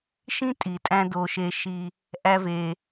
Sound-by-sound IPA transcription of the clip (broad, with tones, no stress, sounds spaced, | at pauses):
ʃ ĩ˦ tʼ i˨ tʼ æ̃˧ d o˨ ʃ e˨ ʃ i˨ | ʔ æ˧ v e˨